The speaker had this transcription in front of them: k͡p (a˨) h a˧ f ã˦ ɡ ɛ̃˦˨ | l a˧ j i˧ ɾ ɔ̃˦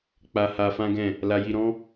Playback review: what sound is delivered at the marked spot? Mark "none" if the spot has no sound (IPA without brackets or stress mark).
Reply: a˧